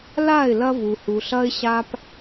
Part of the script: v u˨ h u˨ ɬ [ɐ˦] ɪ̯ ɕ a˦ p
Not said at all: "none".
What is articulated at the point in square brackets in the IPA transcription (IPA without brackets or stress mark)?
ɐ˦